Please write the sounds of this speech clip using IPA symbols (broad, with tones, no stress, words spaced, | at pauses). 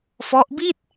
fɔ˦˥ʔbi˥˩t̚